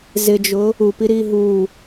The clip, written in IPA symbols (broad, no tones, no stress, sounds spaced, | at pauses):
z ɪ d͡ʒ ʊ | u p i ɾ i ɦ u